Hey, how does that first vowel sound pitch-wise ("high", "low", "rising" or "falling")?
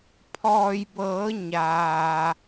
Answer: low